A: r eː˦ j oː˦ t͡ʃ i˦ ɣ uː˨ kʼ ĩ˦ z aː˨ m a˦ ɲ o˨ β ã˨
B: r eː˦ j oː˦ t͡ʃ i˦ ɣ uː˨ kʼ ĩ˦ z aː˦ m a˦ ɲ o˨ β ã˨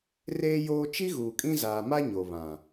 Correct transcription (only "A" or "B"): A